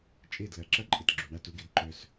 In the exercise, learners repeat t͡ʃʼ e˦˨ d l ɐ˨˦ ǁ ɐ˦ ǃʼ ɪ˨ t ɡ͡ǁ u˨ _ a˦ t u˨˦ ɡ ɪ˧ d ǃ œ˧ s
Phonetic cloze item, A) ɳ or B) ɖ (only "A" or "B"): A